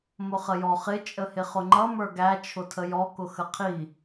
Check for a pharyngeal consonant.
absent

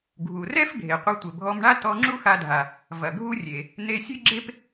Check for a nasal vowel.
absent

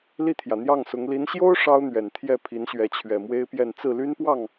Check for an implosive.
absent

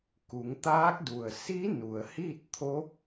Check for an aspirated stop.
present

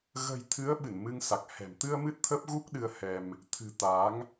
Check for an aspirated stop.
present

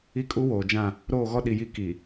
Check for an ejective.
present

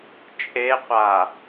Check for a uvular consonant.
present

